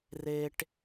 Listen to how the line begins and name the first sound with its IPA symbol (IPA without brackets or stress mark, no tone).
r